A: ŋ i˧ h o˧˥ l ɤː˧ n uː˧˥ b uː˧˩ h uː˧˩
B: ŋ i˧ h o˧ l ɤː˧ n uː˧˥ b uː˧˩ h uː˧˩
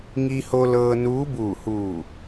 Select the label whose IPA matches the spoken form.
B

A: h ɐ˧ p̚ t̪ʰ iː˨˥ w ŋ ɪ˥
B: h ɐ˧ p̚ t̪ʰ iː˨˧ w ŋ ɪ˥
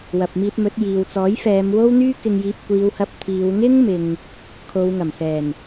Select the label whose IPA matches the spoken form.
B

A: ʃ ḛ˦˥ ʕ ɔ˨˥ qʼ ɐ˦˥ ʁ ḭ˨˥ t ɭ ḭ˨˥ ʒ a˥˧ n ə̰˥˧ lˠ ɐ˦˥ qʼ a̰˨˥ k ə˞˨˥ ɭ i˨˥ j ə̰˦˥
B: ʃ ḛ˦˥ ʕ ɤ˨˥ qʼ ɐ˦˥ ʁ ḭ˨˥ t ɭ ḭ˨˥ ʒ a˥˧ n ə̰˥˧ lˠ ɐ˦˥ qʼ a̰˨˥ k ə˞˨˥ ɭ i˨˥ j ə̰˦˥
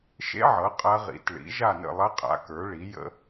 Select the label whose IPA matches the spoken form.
B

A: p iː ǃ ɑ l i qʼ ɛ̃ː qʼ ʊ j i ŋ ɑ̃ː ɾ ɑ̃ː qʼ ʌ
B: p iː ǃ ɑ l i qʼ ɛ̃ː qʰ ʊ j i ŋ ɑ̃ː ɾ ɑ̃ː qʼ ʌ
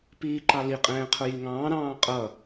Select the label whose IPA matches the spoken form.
B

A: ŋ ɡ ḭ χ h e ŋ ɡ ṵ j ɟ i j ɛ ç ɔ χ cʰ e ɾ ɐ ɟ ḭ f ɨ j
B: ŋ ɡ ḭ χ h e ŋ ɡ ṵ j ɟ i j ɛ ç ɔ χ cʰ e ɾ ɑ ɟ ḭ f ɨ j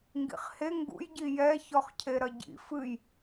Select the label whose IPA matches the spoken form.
A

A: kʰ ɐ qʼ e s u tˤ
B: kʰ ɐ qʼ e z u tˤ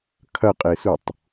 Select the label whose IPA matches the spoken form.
A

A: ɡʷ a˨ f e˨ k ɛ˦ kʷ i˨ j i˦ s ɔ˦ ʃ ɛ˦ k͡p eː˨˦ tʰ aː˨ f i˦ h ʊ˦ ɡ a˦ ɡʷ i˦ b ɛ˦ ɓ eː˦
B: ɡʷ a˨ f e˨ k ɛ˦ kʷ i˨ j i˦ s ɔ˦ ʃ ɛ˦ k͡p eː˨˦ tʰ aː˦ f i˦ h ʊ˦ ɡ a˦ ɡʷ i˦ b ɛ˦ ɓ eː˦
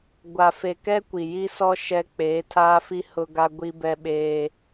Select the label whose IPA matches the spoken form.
B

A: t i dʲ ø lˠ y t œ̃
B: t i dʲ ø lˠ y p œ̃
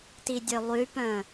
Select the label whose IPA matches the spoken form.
B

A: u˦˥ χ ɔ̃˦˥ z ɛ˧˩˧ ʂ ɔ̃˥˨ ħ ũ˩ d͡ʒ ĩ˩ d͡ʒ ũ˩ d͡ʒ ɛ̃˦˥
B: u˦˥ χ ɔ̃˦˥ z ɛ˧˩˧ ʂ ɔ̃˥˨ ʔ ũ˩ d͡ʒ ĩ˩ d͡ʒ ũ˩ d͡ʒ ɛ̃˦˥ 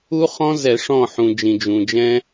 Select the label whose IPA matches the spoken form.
A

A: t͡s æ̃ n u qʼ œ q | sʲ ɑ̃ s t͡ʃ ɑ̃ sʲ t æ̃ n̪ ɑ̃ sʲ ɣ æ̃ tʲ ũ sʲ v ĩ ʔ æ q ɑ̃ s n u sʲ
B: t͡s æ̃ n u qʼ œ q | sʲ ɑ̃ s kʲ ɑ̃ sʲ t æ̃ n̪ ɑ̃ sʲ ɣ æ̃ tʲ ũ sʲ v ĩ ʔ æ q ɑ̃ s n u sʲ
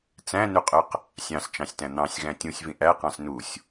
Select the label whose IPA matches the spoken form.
A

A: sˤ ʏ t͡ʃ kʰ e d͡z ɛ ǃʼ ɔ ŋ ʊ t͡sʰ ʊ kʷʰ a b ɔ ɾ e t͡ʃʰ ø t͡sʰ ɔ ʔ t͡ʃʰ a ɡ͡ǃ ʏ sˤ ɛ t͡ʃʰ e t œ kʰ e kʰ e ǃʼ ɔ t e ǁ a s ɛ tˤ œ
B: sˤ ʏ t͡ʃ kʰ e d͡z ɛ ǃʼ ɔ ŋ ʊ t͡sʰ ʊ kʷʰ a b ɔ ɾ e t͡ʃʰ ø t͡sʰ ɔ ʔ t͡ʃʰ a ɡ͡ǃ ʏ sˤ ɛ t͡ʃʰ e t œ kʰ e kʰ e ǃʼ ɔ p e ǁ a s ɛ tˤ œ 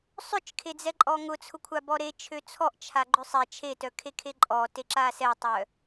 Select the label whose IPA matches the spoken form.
A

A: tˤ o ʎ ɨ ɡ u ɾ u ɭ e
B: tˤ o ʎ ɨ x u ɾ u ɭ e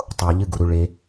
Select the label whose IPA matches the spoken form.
A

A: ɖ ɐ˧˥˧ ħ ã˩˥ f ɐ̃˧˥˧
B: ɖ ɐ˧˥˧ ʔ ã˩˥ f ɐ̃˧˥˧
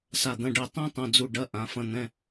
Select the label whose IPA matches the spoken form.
B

